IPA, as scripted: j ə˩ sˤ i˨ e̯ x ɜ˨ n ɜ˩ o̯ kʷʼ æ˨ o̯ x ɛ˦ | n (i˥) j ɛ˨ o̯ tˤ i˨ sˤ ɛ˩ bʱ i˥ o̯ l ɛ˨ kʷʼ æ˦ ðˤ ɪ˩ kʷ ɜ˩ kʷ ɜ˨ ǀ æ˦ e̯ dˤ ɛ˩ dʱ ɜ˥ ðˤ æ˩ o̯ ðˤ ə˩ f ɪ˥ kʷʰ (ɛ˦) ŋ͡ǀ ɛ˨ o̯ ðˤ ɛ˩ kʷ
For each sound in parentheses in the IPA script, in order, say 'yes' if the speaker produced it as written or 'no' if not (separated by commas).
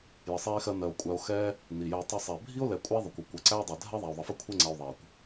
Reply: no, yes